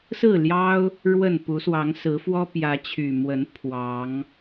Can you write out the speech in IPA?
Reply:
sɹ̩˥˨ ljɑ˦ʊ̯ | ɻwə˥˨n pu˨˦swɑ˨˦ŋsɹ̩˨˦ fwɔ˦ pjä˨˦t͡ɕʰy˨˩mwə˨˦n pʰwɑ˨˦ŋ

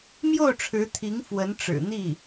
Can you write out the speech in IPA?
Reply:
mjo˥˩ʊ̯ʈ͡ʂʰɻ̩˧˥t̪ʰi˧˥ŋ fwə˧˥nʈ͡ʂɻ̩˨˩n̪i˥˩

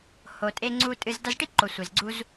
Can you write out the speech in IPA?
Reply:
ho˨ tʼe˧ŋ͡ǀu˧tʼɨ˧z da˧zʈi˦˨ǃo˨ sʷe˨zɡ͡ǀu˦z

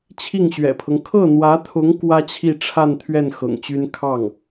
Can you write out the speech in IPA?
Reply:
t͡ɕʰi˥˩ŋɕɥɛ̰˨˩pʰɤ˦ŋ kʰɤ˥˩n̪wä˧˥t̪ʰʊ˧˥ŋ kwä˥t͡ɕʰi˥˧ʈ͡ʂʰa˥˧nt̪ʰɥɛ˥˩n xɤ̰˨˩ŋt͡ɕy˥n kʰɑ˥˩ŋ

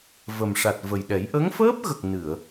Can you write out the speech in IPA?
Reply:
və˨˩mʂa˨˩t̚ və˨˩jɗɛ˨˩˦j ʔə˧˥ŋfəː˦˥p̚ɣə˨˩k̚ nɨ˨˩˨ə̯

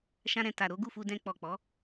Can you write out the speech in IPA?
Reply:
ʃã˧ɾɛ̃˨ ta˨ ɾo˨˦ɡu˦˨fu˧dɛ̃˧ k͡pɔ˨k͡pɔ˨˦

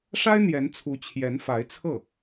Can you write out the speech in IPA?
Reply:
ʂa˥ɪ̯ n̪jɛ˧˥nt͡sʰu˧˥ t͡ɕʰjɛ˧˥nfa˧˥ɪ̯t͡sʰɤ˥˩

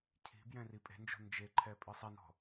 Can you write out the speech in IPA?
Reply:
cʰi̤ bjɛ̃ripʼe̤nd͡ʒo̤ nd͡ʒeǃʰɛ pʼɨsˤinɔ̤

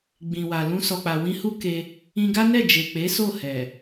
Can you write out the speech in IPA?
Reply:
ɡ͡bĩ˨wa˨ lũ˧sɔ˨k͡pa˨ wĩ˧hu˦ke˧ | ĩ˧ɡa˦ nɛ˦˨d͡ʒe˨k͡pe˨˦so˦˨ hɛ˨

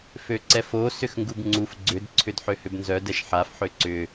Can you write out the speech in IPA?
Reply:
føǀɛfo sʏxŋɡubŋ͡ǀuf ɡ͡ǀʏd ǀʰʏdħøhʏbnzœ dɛʃħaf ħøǀʏ

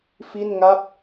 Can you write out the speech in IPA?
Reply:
fi˥˩nŋa˥˩p̚

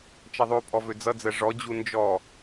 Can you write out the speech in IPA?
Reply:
t͡ʃʌðˤʉpʼɔ vød͡zʌd͡zɜ ʐɔd͡ʑu nd͡ʒɔ

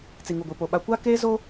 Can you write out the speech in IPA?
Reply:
t͡si˨ŋu˨ɡʷi˨po˨ ɓa˨kʷa˦keː˦ zo˦

